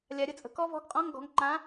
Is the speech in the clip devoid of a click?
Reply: no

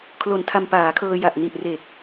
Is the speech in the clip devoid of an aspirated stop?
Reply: no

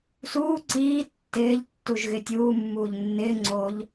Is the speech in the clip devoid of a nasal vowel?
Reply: yes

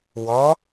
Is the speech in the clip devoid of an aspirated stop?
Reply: yes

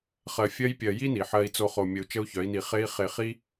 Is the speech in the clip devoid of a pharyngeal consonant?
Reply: no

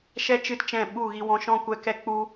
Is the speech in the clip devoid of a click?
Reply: yes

